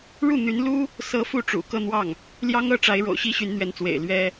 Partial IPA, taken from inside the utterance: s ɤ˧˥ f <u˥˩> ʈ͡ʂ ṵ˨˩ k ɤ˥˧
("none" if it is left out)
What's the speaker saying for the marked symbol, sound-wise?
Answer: u˥˩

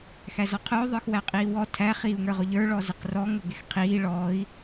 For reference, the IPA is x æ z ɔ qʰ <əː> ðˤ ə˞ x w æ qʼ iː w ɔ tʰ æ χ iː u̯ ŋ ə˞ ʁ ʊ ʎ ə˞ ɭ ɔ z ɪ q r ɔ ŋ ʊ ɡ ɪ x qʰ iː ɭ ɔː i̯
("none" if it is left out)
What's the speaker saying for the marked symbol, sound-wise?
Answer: ʊː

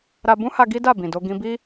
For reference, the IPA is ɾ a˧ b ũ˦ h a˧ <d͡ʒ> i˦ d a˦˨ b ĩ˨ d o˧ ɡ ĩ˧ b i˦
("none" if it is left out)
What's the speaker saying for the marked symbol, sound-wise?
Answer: ɡ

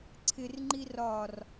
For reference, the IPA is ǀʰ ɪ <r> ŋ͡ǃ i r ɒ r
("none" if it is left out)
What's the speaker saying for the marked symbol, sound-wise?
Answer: r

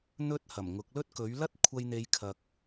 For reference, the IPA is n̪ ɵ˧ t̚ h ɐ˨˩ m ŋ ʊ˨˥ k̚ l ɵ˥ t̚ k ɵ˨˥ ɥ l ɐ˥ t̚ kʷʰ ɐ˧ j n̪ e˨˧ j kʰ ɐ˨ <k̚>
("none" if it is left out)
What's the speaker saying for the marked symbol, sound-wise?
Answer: k̚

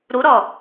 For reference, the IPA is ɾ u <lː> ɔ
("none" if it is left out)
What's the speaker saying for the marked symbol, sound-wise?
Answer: ɾ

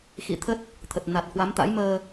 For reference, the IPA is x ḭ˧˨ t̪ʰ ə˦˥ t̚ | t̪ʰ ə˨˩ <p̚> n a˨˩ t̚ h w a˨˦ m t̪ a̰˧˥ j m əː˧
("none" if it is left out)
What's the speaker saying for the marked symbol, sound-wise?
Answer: t̚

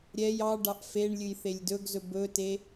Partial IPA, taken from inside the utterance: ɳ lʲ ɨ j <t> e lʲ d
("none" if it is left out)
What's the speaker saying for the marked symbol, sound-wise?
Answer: θ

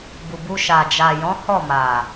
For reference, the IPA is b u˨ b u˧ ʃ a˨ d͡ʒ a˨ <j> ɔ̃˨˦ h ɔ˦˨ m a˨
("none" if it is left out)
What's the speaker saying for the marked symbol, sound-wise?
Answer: j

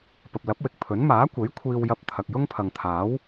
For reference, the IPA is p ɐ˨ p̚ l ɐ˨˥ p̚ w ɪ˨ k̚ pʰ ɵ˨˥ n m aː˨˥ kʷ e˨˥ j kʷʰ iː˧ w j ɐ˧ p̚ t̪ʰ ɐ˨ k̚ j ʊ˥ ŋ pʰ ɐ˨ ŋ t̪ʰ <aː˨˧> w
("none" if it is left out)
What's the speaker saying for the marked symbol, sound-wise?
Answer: aː˨˥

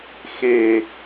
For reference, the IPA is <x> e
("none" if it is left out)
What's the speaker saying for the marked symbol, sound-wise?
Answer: x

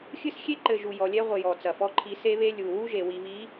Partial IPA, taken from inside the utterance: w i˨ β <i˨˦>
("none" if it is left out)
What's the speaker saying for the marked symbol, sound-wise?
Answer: i˨˦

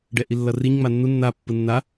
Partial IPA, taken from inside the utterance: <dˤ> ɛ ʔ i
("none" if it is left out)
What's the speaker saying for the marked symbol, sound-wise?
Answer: ɖ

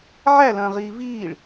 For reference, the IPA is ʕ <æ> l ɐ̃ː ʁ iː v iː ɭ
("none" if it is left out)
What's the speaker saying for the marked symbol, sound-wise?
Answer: æ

